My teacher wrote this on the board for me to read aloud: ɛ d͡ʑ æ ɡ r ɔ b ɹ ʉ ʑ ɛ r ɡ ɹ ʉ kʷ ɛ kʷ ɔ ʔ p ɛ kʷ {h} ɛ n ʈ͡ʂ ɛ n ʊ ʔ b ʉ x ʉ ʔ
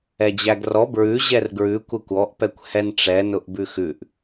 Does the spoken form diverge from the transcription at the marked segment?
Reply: no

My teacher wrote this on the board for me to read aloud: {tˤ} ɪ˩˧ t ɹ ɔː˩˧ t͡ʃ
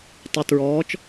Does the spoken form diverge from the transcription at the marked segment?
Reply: no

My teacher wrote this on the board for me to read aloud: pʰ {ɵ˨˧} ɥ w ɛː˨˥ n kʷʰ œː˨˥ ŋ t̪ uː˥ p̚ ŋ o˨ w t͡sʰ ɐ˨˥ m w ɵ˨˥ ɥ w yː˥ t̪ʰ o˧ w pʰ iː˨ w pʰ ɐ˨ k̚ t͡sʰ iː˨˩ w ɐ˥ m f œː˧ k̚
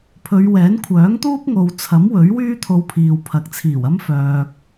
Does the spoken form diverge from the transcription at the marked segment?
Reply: no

